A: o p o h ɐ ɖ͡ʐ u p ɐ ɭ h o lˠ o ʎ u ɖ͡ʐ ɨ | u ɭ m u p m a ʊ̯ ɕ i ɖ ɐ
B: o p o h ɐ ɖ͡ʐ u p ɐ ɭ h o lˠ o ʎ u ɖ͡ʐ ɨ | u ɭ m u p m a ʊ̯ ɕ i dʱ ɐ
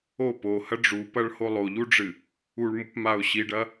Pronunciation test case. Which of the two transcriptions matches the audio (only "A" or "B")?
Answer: A